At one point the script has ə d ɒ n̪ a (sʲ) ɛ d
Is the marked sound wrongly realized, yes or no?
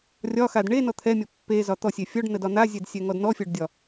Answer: yes